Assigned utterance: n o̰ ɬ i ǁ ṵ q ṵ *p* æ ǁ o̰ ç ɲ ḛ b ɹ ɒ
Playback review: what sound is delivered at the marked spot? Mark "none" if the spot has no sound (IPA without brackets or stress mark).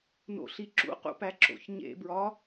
p